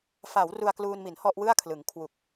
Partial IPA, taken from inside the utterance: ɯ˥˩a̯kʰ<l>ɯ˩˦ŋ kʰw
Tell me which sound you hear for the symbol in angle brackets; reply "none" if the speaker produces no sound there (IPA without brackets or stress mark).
l